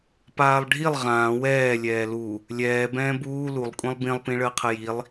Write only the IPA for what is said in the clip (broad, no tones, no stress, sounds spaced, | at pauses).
p aː lˠ ɖʱ i lˠ ʁ ãː w ɛː lʲ ɛː l u | lʲ ɛː b ɛ̃ː b uː l u lˠ kʷʼ ĩ lˠ b ĩ lˠ p ĩ ɭ əː qʰ ə j i lˠ